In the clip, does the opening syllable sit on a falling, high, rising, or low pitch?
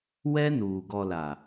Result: high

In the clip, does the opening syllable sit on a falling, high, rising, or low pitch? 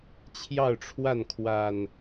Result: falling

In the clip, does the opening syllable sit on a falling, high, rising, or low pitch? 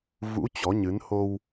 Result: rising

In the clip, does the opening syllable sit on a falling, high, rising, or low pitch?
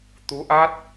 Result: rising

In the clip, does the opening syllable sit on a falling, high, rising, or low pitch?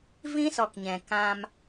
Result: high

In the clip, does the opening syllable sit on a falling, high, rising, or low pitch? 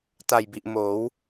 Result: low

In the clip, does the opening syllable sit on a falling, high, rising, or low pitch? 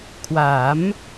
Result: rising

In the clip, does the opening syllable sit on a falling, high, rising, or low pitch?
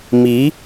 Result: rising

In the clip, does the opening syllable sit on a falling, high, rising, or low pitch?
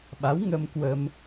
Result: rising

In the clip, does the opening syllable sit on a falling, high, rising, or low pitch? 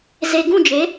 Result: low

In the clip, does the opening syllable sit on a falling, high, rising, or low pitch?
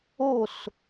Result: falling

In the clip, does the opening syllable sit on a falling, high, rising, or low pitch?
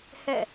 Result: falling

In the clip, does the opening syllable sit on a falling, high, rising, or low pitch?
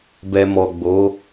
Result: low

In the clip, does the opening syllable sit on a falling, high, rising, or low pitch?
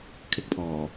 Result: high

